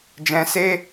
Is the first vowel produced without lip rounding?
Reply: yes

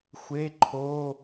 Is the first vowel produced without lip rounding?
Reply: yes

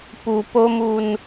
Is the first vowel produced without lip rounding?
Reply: no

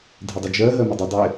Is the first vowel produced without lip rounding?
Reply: yes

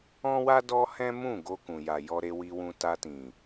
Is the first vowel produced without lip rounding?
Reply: no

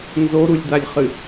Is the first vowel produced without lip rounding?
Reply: no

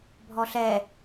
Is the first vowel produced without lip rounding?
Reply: no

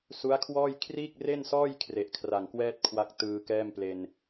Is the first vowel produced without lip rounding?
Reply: no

